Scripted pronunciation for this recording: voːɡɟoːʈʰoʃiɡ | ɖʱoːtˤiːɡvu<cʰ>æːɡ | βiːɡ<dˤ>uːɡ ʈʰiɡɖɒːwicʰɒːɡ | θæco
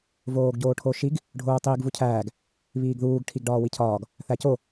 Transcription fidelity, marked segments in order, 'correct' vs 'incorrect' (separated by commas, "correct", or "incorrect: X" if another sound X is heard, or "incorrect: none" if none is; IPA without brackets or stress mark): correct, incorrect: ð